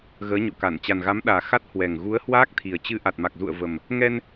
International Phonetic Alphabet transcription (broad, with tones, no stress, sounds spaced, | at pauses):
ɣ əː˨˦ ɲ o̰˧˨ k a˧˩ n t͡ɕ a˨˩ n ɣ a˨˦ m ɗ aː˨˩ x a˦˥ t̚ h w ɛ˨˩ ŋ ɣ u˨˦ ə̯ h w aː˦˥ k̚ t̪ʰ i˨˩ ə̯ t͡ɕ ɨ˧ ʔ a˨˩ t̚ m a˨˩ k̚ z ṵ˧˨ ə̯ v ə˨˩ m | ŋ ɛ˧ n